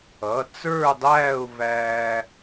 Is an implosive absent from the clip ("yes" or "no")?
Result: yes